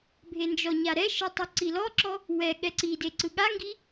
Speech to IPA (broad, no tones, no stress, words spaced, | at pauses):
bʱend͡ʒɔɲa ɾɛʃɯ tˤuǀilɔǁɔ | wɛ ɠɛǀide ǀɯɠaŋɡi